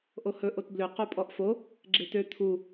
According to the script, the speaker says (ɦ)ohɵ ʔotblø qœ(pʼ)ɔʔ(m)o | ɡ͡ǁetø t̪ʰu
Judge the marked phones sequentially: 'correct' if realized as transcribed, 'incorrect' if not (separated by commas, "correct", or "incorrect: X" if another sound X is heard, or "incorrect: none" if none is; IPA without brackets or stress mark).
incorrect: ʔ, correct, incorrect: f